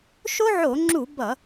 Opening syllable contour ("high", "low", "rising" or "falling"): high